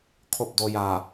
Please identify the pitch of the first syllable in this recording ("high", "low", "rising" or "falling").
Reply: falling